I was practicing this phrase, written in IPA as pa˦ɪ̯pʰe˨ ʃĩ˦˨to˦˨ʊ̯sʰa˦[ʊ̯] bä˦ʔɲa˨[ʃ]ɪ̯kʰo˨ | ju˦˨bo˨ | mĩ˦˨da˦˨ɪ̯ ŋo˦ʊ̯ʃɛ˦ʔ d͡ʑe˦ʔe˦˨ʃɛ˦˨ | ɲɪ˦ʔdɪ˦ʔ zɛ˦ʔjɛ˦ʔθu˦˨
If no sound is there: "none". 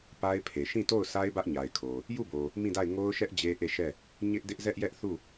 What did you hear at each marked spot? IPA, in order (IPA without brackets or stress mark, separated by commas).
ɪ̯, none